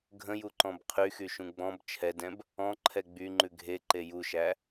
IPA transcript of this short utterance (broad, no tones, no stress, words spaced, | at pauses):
ɡʱə̃juǃɔ̃b qʰyxyʃũ ɡ͡bɔ̃b t͡ʃʰɛdɛ̃b | ɔ̃ǃʰɛ ɡ͡byŋ͡ǃʉ ɡʱeǃe juʃæ